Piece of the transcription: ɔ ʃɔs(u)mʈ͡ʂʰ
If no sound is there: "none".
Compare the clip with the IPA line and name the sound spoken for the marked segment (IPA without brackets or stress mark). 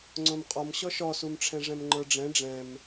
u